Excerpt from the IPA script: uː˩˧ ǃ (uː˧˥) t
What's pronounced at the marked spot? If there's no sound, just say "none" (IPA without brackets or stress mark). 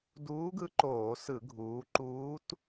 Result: uː˧˥